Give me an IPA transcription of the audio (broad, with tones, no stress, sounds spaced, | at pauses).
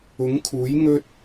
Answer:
ʊ˨˥ ŋ kʰ uː˨˥ j ŋ ɵ˥ t̚